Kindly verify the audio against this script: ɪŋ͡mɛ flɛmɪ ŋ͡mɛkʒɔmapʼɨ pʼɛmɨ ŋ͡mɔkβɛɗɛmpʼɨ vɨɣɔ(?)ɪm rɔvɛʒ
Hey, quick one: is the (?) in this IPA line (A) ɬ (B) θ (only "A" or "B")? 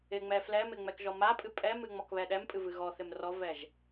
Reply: B